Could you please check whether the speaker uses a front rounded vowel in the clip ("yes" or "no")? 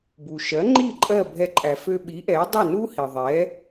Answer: yes